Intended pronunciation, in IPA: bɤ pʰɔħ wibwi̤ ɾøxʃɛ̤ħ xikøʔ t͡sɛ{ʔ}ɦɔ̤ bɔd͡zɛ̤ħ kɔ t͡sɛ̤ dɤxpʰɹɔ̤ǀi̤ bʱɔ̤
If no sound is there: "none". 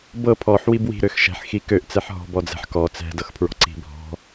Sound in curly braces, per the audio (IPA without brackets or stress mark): ħ